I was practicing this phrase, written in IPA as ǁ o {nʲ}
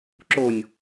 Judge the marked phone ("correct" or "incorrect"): correct